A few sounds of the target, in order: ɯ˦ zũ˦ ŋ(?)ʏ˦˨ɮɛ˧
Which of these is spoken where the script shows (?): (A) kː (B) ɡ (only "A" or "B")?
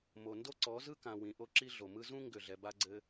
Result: B